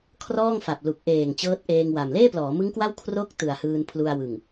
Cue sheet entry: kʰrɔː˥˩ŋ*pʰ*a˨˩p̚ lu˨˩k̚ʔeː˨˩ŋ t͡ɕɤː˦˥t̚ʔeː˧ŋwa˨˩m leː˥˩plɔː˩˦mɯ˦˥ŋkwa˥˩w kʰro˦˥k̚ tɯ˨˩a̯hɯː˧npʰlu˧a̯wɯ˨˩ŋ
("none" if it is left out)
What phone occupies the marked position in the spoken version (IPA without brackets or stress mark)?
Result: f